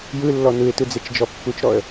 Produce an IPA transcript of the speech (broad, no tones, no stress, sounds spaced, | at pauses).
j ɯ lː ɔ n ɯ ɪ̯ t ɯ d͡z e t͡ʃ d͡ʒ ɔ pː u t͡ʃ ɾ ɔ ə̯